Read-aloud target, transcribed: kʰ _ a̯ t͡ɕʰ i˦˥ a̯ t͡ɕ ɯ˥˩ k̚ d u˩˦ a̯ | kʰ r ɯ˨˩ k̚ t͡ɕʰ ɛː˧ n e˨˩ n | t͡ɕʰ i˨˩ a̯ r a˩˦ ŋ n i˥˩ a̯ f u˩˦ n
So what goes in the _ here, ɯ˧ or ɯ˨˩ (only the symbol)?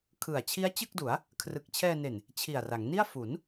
ɯ˨˩